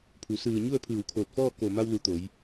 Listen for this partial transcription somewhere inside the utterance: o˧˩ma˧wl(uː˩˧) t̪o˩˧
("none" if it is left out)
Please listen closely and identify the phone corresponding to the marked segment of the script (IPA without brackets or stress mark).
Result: u˩˧